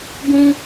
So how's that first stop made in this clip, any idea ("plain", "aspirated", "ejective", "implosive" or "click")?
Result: plain